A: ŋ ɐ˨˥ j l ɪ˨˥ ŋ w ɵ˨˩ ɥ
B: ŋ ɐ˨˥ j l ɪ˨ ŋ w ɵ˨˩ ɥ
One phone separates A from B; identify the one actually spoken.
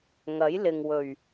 B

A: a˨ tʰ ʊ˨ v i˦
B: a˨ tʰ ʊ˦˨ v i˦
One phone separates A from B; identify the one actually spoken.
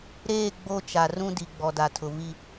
A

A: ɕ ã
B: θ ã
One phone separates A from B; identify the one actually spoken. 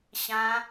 A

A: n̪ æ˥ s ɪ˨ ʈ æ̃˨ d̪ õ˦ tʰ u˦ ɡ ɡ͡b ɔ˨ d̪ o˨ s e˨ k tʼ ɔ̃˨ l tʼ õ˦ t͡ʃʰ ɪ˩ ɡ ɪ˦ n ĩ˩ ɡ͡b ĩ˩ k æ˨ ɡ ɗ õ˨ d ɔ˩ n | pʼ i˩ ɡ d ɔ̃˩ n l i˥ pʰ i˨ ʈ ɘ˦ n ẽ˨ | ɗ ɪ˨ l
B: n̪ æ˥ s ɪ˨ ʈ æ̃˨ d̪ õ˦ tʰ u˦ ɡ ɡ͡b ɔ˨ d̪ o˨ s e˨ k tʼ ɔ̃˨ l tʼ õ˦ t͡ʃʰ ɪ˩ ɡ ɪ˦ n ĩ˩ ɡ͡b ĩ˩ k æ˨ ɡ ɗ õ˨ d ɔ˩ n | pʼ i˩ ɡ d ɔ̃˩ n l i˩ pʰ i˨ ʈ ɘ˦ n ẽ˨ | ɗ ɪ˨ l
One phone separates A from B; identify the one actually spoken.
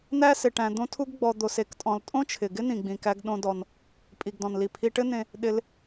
B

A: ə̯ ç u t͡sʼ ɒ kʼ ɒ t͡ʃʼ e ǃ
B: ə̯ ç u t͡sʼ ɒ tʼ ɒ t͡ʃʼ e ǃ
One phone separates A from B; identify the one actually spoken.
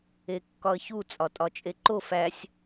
B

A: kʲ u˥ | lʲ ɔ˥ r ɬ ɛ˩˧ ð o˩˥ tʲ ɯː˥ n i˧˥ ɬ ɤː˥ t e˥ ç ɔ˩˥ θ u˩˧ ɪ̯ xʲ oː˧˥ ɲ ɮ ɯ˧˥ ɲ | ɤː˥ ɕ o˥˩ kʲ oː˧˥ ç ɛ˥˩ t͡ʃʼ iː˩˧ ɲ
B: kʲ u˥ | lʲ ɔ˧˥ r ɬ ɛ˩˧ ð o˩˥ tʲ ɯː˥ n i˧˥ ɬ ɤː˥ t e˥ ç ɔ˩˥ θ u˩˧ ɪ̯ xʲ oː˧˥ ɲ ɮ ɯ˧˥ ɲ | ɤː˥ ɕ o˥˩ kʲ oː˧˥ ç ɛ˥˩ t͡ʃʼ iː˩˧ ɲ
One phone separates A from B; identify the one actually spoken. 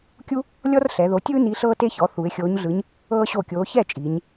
A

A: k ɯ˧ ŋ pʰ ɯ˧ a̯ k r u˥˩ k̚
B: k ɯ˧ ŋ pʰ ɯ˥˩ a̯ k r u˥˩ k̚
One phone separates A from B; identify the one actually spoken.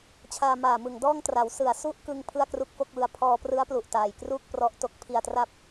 B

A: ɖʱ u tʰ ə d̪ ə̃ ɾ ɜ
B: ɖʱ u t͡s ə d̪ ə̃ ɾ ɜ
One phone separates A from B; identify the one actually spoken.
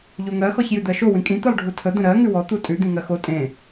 A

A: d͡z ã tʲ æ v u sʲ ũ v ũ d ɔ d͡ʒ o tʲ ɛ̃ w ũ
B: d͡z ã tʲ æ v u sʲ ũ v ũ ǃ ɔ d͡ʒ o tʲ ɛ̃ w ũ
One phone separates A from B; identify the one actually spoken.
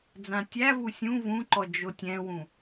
B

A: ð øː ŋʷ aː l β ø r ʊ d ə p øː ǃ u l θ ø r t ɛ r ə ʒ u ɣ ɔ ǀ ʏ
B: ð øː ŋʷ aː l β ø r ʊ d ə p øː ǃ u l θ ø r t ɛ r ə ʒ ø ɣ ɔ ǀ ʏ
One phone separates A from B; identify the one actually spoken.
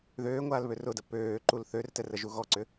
A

